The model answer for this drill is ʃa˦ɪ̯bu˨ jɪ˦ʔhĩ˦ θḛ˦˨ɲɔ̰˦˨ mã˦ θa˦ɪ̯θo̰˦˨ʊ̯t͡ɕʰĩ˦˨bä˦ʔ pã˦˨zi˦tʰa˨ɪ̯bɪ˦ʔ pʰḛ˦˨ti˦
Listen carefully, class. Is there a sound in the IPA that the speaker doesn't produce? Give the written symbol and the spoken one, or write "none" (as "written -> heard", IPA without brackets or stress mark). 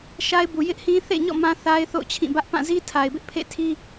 t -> tʰ